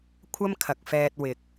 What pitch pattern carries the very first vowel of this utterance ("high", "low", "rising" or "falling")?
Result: high